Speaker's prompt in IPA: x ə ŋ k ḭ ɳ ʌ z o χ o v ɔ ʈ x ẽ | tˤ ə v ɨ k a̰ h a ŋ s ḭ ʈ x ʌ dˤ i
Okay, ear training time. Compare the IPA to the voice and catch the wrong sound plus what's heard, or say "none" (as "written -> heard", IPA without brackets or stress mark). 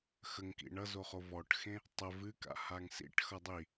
none